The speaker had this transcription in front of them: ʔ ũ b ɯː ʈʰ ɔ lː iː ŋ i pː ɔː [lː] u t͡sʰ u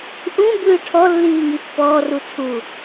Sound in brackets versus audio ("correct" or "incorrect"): incorrect